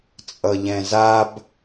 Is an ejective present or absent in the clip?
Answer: present